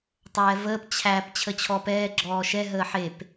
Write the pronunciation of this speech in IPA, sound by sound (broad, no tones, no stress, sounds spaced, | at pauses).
tˤ ɛː v əː p t͡ɕʰ æ p t͡ɕʰ ə t͡ɕʰ ɔ p ɛː ɡ͡ǁ ɔː ʃ ɛ ɦ əː ħ e p